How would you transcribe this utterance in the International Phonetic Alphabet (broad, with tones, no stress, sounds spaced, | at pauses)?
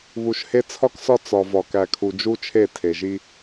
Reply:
β u˨ ʃ h e˦ t͡sʰ ɒ˦ k s ɒ˦ t͡s ɒ˨ v ɒ˨ k æ˨ kʰ u˨ d͡ʒ u˦ t͡ʃʰ e˦˨ tʰ e˨ ʒ i˦